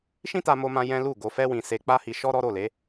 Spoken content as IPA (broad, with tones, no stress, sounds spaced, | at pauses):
ʃ ĩ˦ t a˧ m o˧ m ã˧ j ɛ̃˦ l u˦˨ ɡ o˧ f ɛ˦ w ĩ˧ s e˧ k͡p a˦ h i˧ ʃ ɔ˦ ɾ ɔ˦ ɾ o˦˨ l e˨˦